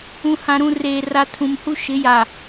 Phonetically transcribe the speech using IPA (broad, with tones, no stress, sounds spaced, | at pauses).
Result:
ũ˨ h ã˨ ɾ ũ˨ r eː˨ r a˨ tʰ ũ˨ m h u˦ ʃ ɪ˨˦ j a˨